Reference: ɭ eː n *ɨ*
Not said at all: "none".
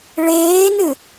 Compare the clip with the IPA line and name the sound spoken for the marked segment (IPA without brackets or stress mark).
ɨ